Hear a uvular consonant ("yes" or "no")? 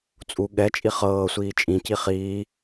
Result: yes